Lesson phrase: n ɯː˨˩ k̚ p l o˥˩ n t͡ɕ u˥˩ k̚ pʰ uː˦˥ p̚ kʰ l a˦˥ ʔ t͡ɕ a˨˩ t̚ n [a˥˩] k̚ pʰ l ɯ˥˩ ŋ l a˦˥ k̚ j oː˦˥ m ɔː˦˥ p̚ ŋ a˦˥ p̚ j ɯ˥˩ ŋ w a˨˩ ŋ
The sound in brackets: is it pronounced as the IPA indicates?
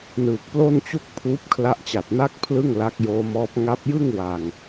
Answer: yes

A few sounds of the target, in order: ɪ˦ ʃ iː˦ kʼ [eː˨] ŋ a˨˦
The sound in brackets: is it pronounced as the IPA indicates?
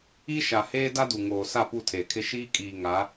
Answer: no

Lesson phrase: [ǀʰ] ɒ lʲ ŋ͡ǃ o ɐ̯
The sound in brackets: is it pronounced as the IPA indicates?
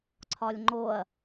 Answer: yes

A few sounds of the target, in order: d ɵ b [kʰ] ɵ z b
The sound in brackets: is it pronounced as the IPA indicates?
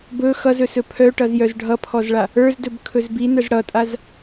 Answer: yes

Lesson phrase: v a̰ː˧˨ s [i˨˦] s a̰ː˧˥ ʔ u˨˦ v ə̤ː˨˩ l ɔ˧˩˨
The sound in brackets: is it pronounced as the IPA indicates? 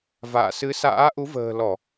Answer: no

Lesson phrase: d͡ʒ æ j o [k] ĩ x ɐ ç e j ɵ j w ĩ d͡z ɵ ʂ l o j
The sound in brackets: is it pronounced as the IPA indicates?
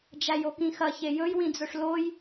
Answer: yes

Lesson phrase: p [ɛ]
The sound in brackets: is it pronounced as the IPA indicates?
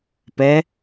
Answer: yes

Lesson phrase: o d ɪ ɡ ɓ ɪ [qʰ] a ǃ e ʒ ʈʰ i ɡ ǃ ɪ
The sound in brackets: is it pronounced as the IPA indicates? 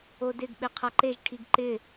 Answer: yes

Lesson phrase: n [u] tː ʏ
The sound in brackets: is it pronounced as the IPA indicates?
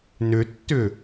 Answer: no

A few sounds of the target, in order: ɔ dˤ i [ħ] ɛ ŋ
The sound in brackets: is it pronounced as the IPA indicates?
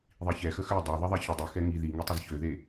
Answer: no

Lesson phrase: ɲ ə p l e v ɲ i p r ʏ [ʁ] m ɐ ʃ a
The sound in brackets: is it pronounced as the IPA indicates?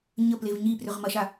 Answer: yes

